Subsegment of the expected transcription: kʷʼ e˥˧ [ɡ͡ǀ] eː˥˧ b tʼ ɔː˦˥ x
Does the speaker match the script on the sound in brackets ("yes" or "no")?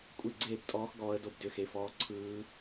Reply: yes